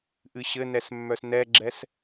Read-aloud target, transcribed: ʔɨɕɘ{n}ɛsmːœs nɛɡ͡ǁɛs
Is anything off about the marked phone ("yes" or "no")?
no